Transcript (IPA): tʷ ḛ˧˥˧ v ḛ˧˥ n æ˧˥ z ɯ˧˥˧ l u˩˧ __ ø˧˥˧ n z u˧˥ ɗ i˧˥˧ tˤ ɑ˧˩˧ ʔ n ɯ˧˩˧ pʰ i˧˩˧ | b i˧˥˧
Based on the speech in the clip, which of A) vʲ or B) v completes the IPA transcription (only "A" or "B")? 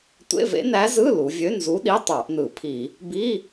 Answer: A